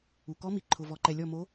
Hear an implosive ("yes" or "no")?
no